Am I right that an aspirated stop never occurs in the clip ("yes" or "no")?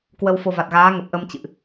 yes